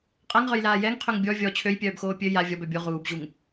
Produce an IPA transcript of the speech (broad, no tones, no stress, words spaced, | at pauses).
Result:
qʼaŋʁœjlaː jɛŋqʰøŋ bʲɔ vʲɔ t͡ɕʰøjpʲœːbxoː pʲø ja vʲɔbœ bʲo ʁuːbʑuŋ